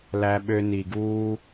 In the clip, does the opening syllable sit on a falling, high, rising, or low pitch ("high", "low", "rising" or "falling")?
high